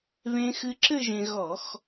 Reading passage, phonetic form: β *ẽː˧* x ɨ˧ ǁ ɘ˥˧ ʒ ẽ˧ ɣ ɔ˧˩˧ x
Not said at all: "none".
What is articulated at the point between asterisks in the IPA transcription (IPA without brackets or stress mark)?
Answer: ẽ˧